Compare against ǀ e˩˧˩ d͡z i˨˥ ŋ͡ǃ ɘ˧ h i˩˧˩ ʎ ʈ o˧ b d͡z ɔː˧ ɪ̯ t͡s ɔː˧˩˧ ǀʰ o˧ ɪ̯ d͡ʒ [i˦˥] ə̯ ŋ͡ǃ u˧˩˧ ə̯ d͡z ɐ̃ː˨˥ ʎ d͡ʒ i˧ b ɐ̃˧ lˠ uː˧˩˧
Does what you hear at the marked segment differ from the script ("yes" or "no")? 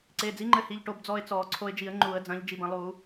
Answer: yes